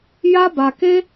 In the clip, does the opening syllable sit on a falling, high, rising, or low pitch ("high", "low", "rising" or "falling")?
high